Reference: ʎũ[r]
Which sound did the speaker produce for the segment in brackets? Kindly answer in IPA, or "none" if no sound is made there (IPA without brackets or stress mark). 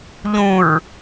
ɹ